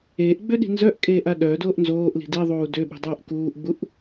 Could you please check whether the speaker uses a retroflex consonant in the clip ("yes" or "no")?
no